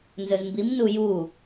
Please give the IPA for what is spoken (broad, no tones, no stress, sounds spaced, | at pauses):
n z ɵ z m b i m n u j u